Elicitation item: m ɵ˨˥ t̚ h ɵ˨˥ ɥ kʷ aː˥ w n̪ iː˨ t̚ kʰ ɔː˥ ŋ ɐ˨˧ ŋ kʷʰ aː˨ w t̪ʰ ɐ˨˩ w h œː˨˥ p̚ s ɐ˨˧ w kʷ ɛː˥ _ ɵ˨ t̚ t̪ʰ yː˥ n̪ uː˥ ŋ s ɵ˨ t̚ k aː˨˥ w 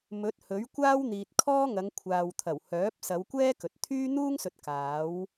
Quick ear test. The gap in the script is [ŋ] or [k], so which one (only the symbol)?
k